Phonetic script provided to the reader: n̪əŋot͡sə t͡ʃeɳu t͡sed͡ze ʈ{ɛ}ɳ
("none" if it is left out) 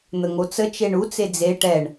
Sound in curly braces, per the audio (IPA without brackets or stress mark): ɛ